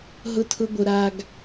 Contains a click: no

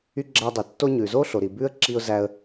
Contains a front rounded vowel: yes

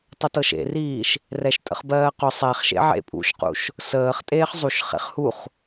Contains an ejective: yes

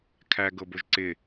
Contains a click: yes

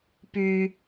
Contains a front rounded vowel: yes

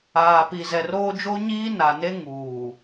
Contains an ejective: no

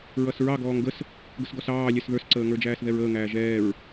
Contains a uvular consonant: no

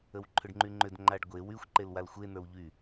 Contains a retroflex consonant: yes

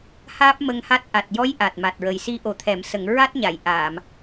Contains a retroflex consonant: no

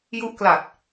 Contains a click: no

